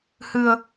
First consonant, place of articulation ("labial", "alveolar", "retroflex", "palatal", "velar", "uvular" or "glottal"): glottal